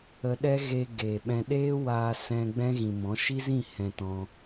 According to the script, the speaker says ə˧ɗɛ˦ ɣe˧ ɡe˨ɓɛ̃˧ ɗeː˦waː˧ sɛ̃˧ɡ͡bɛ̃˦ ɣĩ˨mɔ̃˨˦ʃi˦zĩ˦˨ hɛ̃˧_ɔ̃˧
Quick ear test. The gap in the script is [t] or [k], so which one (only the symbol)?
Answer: t